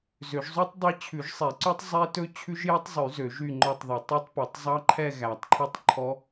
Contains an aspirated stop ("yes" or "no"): yes